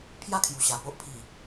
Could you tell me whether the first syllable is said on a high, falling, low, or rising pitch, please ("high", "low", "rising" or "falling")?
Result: falling